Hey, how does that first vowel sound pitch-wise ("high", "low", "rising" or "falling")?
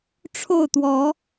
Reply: falling